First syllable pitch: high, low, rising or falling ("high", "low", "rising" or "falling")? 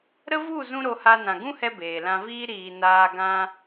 high